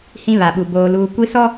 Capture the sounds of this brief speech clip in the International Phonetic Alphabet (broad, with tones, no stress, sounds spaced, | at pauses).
h ĩ˦ β a˨ ɓ u˨ b oː˨ l uː˨ kʷ i˦ s ɔ˦